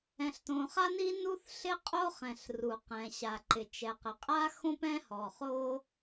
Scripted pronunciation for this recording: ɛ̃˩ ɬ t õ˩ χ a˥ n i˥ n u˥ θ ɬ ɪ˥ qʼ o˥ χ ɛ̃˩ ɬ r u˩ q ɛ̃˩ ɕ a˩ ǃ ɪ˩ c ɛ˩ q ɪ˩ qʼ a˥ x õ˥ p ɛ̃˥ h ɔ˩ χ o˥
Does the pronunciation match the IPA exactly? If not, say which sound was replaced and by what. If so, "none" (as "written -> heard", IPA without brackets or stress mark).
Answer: c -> t͡ʃ